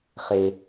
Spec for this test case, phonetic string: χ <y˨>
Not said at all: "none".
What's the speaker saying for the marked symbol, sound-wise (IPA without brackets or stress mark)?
e˨